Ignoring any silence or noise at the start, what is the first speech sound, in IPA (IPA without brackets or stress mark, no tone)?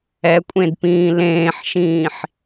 ɛ